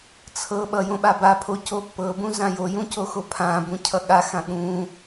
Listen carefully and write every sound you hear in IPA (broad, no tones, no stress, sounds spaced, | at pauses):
t͡sʰ ɤ ɓ ʌ j õ ɓ a b a pʰ o c o pː ɤ b ũ z ã j o j ũ c o x o pʰ ã b ũ cʰ ʌ ɠ a x ã ɠ ũ